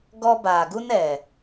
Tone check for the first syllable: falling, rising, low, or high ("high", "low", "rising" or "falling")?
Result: high